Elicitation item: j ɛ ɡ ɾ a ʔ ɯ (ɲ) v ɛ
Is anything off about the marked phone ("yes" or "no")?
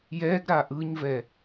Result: no